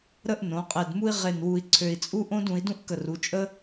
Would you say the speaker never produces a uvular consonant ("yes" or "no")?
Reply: no